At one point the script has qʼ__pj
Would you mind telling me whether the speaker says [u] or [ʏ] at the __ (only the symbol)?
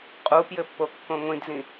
u